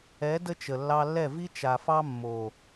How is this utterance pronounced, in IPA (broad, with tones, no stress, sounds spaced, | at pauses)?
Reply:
ɛ˨˦ d ə˦ t͡ʃ ə˨ lː ɑ˧ lː ɛ˦˨ v i˦ t͡ʃ a˨ f ɑ˦ mː o˨